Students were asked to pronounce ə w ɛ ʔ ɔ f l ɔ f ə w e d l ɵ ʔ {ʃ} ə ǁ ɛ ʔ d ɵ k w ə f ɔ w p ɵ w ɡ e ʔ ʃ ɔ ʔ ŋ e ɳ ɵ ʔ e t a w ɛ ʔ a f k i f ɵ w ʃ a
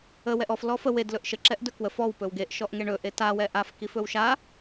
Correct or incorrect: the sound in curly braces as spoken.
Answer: correct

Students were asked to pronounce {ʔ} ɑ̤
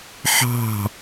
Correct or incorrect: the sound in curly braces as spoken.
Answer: incorrect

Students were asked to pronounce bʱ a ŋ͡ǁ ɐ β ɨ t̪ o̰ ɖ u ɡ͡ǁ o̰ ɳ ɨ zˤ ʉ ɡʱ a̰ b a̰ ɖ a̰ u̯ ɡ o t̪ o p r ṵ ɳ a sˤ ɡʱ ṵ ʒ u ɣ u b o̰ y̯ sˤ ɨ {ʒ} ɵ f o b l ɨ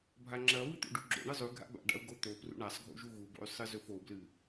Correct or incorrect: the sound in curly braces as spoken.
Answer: incorrect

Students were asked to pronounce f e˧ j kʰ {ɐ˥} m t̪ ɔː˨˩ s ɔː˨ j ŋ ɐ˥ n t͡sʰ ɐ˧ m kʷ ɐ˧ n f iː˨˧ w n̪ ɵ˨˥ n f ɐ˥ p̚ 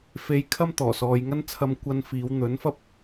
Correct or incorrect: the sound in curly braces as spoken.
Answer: correct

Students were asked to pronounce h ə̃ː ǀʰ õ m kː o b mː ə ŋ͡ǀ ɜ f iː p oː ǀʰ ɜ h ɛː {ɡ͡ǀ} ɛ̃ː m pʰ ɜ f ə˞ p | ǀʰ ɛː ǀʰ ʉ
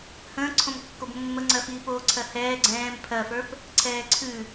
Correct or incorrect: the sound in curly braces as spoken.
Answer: correct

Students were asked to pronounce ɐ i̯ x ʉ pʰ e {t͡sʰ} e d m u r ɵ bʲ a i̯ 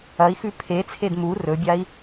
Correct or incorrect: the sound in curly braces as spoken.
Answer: correct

